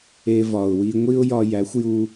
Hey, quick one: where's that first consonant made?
lips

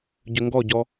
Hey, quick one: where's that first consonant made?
palate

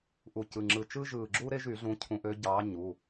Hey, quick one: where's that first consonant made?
throat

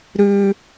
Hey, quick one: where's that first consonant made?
tongue tip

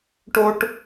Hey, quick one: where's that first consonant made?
retroflex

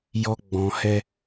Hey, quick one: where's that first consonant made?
palate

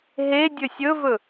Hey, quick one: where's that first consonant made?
throat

